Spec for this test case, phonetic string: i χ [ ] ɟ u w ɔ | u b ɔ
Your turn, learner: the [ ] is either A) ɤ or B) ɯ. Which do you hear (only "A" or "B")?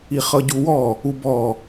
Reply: A